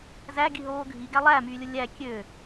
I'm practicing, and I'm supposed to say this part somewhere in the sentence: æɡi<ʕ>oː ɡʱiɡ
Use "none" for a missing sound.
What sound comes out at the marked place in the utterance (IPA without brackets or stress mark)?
ɦ